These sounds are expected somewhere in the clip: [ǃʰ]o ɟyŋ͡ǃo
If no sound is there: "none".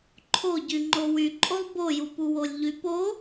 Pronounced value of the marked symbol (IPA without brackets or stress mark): ǃʰ